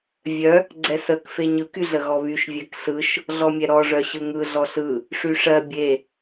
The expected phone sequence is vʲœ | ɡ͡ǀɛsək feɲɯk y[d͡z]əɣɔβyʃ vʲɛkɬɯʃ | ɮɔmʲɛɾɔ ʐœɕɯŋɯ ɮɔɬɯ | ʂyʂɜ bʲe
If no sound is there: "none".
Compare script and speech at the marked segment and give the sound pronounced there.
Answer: ɮ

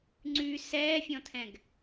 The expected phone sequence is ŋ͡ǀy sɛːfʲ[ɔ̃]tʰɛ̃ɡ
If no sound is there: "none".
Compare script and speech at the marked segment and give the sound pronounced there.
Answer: ɔ̃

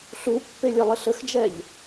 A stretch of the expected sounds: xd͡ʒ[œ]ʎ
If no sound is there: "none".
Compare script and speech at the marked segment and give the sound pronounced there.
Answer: ɛ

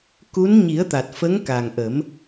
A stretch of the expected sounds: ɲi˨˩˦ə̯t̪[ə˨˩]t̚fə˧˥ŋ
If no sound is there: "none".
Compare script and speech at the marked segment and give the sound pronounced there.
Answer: a˨˩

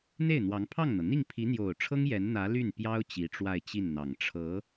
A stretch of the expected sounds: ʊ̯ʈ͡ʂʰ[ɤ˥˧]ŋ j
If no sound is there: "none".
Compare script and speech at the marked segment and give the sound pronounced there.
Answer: ɤ˥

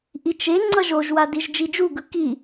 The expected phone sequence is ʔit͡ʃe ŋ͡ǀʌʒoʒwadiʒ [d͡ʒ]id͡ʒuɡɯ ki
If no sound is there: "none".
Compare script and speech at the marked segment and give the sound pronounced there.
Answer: d͡ʒ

